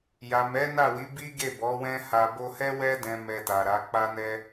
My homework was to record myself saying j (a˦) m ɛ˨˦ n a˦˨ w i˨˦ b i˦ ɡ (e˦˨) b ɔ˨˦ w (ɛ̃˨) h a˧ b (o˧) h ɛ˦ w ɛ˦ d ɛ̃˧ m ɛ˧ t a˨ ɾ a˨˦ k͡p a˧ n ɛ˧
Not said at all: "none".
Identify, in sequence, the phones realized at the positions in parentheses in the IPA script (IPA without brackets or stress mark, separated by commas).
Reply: a˨, e˦˨, ɛ̃˦, o˧